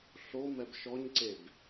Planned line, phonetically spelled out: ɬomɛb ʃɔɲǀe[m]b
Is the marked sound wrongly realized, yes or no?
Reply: yes